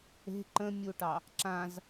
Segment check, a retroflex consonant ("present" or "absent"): present